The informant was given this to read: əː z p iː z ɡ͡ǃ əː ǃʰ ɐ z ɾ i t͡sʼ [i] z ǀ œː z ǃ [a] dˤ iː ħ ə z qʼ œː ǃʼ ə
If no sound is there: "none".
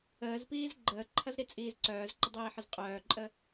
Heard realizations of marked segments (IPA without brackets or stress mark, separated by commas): iː, ə